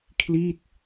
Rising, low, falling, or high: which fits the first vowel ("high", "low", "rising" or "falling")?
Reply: falling